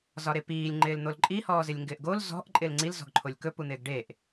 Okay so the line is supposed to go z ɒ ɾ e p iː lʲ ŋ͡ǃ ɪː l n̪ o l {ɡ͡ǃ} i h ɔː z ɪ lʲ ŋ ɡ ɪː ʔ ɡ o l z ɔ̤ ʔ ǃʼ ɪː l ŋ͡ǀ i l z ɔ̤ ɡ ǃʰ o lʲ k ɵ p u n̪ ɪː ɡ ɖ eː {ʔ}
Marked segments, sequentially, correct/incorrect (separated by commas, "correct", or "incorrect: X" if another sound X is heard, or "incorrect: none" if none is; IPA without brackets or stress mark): incorrect: ǃʼ, correct